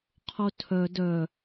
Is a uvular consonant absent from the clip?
no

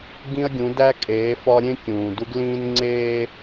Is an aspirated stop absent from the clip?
yes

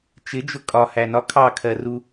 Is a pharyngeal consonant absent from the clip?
yes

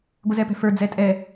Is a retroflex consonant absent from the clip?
yes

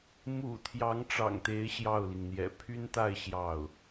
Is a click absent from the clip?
yes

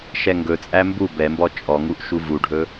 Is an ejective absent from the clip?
no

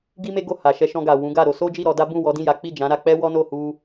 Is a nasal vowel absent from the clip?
no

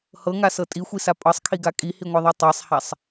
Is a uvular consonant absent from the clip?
yes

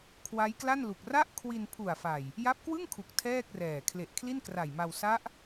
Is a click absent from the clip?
yes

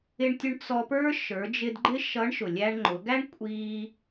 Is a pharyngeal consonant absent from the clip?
yes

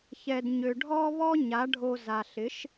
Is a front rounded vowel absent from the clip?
no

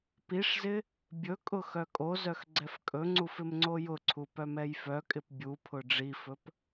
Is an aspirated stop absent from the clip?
no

